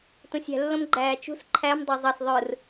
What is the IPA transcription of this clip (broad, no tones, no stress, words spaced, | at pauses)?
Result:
tũsʲæ̤lːõmɡ͡ǃæː t͡ʃṳs ǃʰæm dˤæzˤɑs ðˤɯr